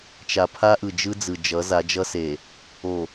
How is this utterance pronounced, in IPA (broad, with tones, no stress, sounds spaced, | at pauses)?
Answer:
t͡ʃ a˨ pʰ a˦ ʔ ɯ˨ d͡ʒ ɯ˦ d͡z ɯ˨ d͡ʒ ʌ˨˦ z a˨˦ d͡ʒ ʌ˦ s e˨ | o˨